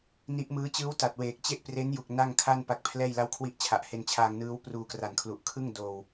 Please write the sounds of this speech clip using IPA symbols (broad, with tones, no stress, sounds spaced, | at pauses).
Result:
n i˦˥ ʔ m ɯː˦˥ t͡ɕ ɯː˦˥ w t a˨˩ t̚ w eː˨˩ k̚ t͡ɕ e˥˩ ʔ p r e˦˥ n j u˨˩ k̚ n a˥˩ ŋ kʰ a˥˩ n p a˦˥ k̚ pʰ l ɛː˥˩ j l a˥˩ w kʰ w i˦˥ ʔ t͡ɕʰ a˨˩ ʔ h e˧ n t͡ɕʰ aː˧ ŋ n ɯː˦˥ w p r uː˧ k r a˨˩ n kʰ l u˨˩ ʔ kʰ ɯ˥˩ ŋ d oː˧ w